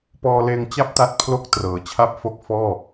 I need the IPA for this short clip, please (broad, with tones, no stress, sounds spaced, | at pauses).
p ɔː˧ l eː˧ ŋ t͡ɕ a˥˩ p̚ t a˦˥ t̚ pʰ l o˦˥ k̚ t r ɤː˩˦ t͡ɕʰ a˥˩ p̚ f o˥˩ k̚ f ɔː˥˩